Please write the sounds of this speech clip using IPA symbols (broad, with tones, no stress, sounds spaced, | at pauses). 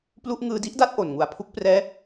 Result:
p l u˥˩ ʔ ŋ ɯː˧ d i˦˥ ʔ d a˥˩ t̚ ʔ o˨˩ n ŋ u˨˩ a̯ pʰ u˦˥ k̚ p r ɛː˦˥